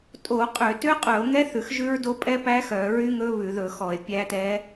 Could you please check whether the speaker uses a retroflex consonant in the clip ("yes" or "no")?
no